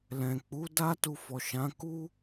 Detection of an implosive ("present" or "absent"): absent